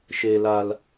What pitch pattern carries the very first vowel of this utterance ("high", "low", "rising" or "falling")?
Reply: low